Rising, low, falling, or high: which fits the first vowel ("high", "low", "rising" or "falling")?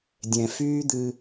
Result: low